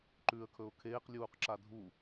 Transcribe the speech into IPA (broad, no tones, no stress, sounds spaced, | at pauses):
ǃ ʉː ə̯ kʰ ɵ ʊ̯ kʰ eː q lʲ uː q ǁ a dʱ u